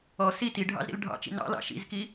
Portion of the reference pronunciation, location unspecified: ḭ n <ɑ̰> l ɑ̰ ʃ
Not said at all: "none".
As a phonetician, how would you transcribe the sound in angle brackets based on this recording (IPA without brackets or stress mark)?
ɑ̰